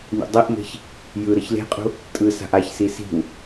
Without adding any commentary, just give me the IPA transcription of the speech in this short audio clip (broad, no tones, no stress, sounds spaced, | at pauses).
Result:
nʲ ṵ dˤ i ʔ m e̤ ç | j ɯ ɾ ʌ ç l e̤ qʼ ṳ | tʼ ɯ s a̤ ʔ a ç s i s i̤ w